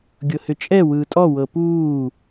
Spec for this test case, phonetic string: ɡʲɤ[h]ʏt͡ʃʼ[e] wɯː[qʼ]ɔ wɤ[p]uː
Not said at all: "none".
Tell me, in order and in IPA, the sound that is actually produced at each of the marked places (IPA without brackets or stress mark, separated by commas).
h, ɛ, tʼ, p